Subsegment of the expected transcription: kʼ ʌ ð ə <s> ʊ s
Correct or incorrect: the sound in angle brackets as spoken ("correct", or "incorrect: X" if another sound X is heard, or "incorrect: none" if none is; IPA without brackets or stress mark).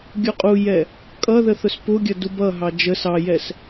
incorrect: θ